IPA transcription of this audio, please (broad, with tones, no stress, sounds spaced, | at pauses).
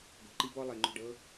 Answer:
ɡ o̤˨ ǃ i˦ b ɔ˦ lˠ e˨ ŋ͡ǃ o̤˦˨ ɖ ɤː˦